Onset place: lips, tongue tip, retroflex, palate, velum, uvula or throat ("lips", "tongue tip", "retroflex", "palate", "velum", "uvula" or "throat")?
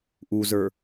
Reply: throat